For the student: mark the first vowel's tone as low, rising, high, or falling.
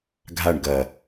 falling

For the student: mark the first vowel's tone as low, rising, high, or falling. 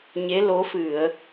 rising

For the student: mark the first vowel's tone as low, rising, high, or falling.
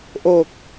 low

